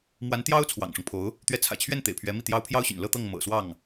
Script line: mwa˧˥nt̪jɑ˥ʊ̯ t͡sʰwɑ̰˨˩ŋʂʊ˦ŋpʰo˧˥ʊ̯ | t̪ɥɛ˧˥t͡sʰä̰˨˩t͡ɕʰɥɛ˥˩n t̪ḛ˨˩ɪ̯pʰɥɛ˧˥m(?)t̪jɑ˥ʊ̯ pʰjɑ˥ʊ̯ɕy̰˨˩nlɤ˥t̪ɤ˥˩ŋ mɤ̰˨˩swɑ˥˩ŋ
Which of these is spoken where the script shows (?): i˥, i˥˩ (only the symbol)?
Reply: i˥˩